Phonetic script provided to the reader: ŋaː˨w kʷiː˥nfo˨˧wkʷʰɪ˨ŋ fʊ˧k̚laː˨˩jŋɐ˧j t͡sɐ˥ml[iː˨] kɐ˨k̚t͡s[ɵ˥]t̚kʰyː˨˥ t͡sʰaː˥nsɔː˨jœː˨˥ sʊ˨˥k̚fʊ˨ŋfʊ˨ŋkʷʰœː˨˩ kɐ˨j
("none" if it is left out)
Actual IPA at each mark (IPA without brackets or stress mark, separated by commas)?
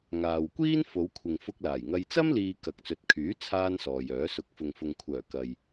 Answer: iː˨, ɵ˨